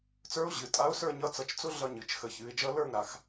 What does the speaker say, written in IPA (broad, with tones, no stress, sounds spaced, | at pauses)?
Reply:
t͡s ə˞˧˥ ʊ̯ ʑ ɨ˩˧˩ tʼ a˧˥ ʊ̯ s ə˞˥˧ ɲ ʌ˧˥ t͡s ʌ˧˩ t͡ʃ t͡s ʊ˥ ɮ ʌ˥˧ ɲ ɨ˩˧˩ t͡ʃ x ə˧˩ ç ɨ˩˧ ɪ̯ d͡ʒ ʌ˧˥ l ə˞˥˧ ŋ ɾ a˩˧ x